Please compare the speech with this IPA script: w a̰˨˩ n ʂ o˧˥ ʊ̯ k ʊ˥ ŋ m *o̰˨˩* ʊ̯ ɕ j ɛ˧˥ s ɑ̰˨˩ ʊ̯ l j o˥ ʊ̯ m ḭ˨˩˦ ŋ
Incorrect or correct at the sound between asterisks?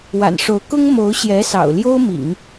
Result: incorrect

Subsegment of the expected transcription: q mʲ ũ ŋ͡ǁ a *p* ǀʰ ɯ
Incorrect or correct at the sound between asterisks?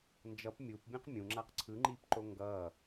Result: incorrect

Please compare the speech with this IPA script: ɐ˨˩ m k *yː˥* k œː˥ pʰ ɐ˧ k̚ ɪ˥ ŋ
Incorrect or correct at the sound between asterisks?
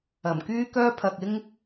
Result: correct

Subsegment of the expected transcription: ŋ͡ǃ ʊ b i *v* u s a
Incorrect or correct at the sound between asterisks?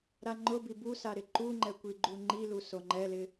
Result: incorrect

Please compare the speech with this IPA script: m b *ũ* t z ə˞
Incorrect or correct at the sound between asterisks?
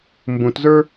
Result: correct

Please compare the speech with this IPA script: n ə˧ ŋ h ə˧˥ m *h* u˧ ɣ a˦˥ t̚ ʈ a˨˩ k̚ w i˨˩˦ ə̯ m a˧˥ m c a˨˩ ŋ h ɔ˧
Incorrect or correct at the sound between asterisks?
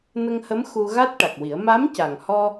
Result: incorrect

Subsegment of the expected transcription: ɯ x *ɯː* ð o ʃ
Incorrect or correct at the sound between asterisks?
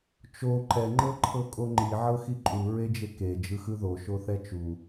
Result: incorrect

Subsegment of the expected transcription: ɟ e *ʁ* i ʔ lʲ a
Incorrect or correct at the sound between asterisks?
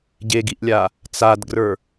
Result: incorrect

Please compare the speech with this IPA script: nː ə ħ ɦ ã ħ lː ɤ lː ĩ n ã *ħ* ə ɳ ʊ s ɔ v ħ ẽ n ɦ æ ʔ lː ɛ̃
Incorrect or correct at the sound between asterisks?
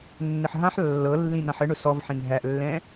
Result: correct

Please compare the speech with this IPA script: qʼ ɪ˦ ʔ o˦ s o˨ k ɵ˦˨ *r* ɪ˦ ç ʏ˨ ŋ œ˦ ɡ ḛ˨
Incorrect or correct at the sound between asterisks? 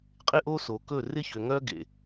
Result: correct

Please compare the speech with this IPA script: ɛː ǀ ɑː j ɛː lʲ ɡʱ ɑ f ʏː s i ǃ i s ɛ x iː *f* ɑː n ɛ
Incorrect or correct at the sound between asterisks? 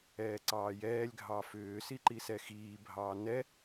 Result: incorrect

